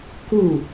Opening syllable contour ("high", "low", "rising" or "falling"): falling